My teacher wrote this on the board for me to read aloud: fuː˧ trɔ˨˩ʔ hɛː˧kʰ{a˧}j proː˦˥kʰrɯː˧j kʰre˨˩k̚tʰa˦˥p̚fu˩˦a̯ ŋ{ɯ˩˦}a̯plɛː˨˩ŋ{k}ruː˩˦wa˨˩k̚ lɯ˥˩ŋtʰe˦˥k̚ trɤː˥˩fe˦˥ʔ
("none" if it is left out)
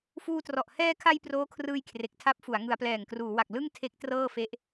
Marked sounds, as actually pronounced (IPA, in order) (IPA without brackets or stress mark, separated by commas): a˧, ɯ˩˦, k